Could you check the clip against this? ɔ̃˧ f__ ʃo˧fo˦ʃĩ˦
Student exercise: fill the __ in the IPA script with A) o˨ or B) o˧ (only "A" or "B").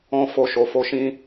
B